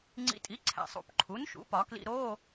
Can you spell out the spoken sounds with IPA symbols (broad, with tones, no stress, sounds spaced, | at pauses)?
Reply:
ŋ͡ǀ ḭ˨ tʼ i˩˥ ǀʰ æ̰˨ sˤ ṵ˨˩˦ p ǃʰ u˩˥ n ʃ ṵ˩˥ p ɒ˨˩˦ k l ḭ˧˥˧ ɾ o˧˥˧